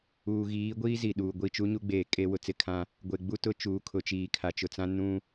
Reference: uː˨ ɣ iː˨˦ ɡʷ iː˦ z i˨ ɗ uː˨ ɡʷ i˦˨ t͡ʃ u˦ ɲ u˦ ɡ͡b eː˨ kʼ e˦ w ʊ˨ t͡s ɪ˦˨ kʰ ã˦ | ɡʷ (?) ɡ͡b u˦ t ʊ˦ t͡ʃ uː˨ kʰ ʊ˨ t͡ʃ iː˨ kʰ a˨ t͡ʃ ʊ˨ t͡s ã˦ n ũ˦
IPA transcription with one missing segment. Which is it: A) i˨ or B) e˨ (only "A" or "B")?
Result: B